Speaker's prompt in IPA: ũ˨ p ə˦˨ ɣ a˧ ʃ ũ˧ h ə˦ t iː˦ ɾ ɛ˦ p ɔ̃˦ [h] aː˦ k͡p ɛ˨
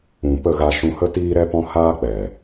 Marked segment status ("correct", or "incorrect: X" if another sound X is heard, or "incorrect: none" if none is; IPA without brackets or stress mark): correct